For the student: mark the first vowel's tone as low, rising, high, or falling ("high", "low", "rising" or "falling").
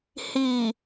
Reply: low